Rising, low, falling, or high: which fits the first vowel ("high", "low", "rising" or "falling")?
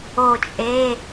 falling